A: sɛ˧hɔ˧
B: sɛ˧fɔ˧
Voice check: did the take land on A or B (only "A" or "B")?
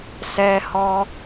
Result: A